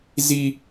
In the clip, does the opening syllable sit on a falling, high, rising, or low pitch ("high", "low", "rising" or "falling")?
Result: high